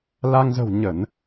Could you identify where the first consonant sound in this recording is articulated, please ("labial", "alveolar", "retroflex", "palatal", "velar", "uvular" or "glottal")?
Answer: alveolar